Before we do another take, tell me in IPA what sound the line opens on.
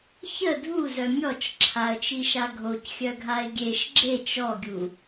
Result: ç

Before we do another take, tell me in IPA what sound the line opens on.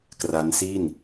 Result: k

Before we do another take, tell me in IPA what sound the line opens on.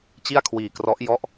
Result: t͡ɕ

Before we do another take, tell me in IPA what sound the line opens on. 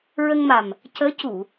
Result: ɹ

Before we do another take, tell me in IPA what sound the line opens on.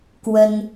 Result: k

